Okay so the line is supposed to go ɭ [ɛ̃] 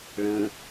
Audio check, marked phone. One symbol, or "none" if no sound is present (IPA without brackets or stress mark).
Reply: ə̃